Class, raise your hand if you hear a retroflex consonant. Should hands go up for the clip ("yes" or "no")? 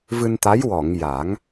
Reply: no